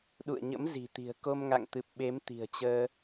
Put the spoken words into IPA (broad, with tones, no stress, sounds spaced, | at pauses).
ɗ ṵ˧˨ ə̯ ɲ ə̰˧˥ m z i̤˨˩ t̪ i̤˨˩ ə̯ k o˧ m ŋ a̰˧˨ ŋ t̪ ɨ˨˩ p̚ ɓ e˨˦ m t̪ i̤˨˩ ə̯ t͡ɕ əː˧